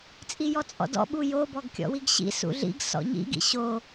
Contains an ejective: yes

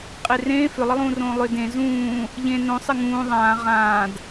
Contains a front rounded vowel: yes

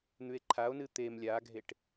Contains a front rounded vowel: no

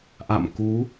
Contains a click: no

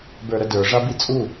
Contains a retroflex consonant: yes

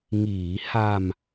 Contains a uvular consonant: no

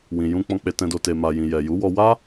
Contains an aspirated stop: no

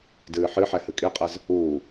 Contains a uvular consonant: yes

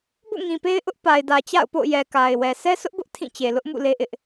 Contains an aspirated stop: yes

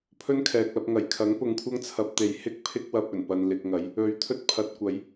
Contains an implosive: no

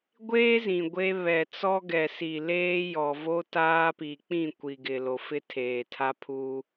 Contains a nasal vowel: yes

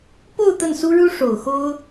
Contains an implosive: no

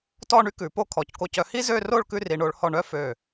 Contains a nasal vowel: no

